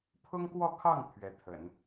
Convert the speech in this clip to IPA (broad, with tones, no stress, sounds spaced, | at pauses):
pʰ ʊ˥ ŋ k w ɔ˥˧ kʰ ɑ˥˩ ŋ pʰ ɥ ɛ˧˥ t̪ʰ ə̰˨˩˦ n